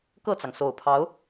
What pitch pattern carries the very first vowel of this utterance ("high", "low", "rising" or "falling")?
falling